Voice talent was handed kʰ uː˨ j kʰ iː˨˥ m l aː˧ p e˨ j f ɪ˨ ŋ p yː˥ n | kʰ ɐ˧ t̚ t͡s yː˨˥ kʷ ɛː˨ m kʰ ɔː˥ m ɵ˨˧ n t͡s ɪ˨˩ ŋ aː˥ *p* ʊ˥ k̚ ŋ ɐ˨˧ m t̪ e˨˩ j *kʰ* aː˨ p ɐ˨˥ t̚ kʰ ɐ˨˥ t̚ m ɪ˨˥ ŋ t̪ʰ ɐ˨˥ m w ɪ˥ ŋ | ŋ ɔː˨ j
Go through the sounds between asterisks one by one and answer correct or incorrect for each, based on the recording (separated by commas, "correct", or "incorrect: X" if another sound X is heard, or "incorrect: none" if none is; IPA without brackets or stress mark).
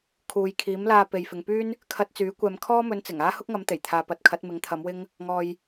incorrect: h, incorrect: t̪ʰ